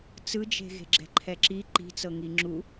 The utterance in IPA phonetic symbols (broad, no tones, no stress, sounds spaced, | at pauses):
t͡s ɯ d͡ʒ e̤ ɣ e̤ ɡ͡ǁ ɛ̤ ǃʰ ɛ ǁ i ǃ i̤ t͡s ɤ ŋ i ŋ͡ǁ u